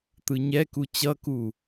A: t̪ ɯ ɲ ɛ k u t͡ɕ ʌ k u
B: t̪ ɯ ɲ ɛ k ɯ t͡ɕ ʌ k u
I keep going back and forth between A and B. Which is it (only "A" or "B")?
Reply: A